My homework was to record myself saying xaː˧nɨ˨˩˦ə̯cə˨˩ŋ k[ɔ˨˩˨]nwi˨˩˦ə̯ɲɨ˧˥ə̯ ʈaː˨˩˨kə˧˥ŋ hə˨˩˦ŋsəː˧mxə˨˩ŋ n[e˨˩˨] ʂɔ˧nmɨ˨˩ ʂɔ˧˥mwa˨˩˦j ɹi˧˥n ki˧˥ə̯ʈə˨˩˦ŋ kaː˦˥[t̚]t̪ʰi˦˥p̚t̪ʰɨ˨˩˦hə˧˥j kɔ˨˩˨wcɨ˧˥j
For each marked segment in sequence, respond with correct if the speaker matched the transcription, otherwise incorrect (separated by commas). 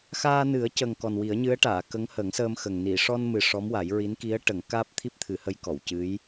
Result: incorrect, incorrect, incorrect